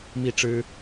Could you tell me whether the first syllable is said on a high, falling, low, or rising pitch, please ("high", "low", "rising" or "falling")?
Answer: falling